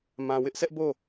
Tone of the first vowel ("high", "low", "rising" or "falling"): low